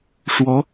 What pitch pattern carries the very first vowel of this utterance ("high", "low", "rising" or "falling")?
rising